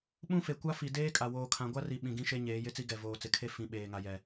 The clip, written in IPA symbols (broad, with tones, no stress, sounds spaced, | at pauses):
ɓ ũ˦ f e˨ kʷ a˦ f i˨ d eː˦ kʼ a˨ w oː˨ kʰ ã˨ ɡʷ a˦ r i˨ ɓ ĩ˨ ɡ ĩ˦ ʃ e˦ ɲ eː˨˦ j ɪ˦ t͡s i˦ ɡ ɛ˨ v oː˨ t͡s ɪ˨ kʰ e˦ f ĩ˨ ɓ eː˨ ŋ a˨ j ɛ˨